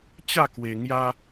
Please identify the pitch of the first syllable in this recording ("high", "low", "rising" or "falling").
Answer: falling